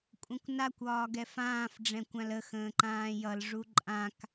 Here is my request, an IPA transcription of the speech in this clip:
kʷʼ ə̃ kʷ n a kʷ ɒː ɡ ɛ f ãː f ɖ͡ʐ ɛ̃ kʷ ã l ə x ə̃ː ǃ ãː j ʌ l ʐ u ǃʼ ã k

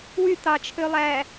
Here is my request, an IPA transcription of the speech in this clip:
w y t̪ ɑ t͡ʃʰ ø lˠ æː

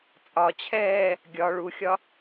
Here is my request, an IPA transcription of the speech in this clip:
t͡sʼ ɒ t͡ɕʰ ɛː | ɡʲ ɒ ɭ u xʲ ɒ

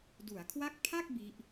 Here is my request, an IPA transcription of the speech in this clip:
d u˩˦ a̯ kʰ w a˦˥ k̚ pʰ a˥˩ k̚ b i˦˥ ʔ

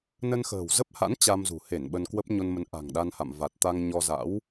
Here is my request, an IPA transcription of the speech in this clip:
n ə˧ n x ə̤ː˨˩ w z ə˦˥ p̚ h a̰˧˥ n t͡ɕ a˧ m z ṳ˨˩ h e˧˩ n ɓ ə˧ n k w ə˦˥ p̚ ɲ o˧ n m ə˨˦ n ʔ a̤˨˩ ŋ ɗ a˧ n h a̰˧˨ m v a˨˩ t̚ t̪ a˧ ŋ ɲ ɔ˧ z a̰˧˥ w

